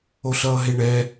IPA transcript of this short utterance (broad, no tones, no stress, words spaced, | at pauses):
oɬʌːɦeɳɛ